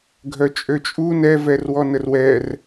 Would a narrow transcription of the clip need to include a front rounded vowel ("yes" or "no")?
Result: yes